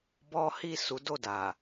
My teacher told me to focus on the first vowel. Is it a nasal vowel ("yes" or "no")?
no